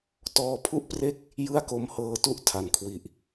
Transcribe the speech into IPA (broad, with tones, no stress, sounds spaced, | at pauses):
t ɔː˧ pʰ u˥˩ ʔ p r e˥˩ k̚ | j ɯ˥˩ a̯ k o˧ m h ɤː˧ t u˥˩ ʔ tʰ a˩˦ n kʰ w i˨˩ ʔ